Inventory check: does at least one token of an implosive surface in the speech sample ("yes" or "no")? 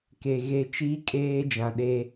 yes